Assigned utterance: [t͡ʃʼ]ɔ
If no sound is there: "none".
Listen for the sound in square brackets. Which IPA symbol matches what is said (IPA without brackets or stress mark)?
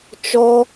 t͡ʃ